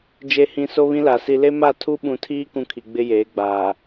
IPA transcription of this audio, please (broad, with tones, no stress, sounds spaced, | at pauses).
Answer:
d͡ʒ e˨ h ĩ˨ s o˦ β ĩ˦ l a˨ s i˨ l e˦ m a˦˨ tʰ u˦ ɓ ũ˨ tʰ iː˦ k ũ˦ kʰ i˨ ɡ͡b ɪ˦ j eː˨˦ ɡ͡b aː˨